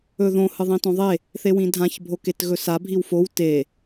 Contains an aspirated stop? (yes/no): no